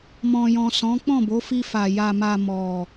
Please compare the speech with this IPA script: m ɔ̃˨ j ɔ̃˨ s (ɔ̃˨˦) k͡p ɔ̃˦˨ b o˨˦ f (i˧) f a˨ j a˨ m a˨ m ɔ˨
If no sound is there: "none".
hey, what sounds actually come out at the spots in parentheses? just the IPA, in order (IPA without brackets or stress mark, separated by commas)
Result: ɔ̃˨˦, i˧